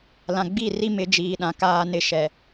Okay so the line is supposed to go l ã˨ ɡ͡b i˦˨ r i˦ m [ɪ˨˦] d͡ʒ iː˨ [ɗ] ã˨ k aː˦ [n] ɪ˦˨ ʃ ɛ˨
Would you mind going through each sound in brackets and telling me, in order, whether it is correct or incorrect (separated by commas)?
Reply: correct, correct, correct